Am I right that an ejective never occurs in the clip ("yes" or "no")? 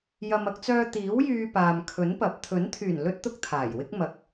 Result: yes